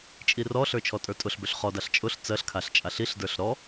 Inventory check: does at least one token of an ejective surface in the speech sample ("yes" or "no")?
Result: yes